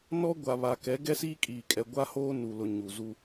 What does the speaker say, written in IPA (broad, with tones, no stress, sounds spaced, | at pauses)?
n ɔ˦ ɡʷ a˨ β a˨ k ɛ˨˦ ɡ ɛ˦ s iː˦ kʼ iː˨ kʼ ɛ˨ ɡʷ a˦ h oː˦ n u˨ l ʊ˨ ɲ u˨ z u˦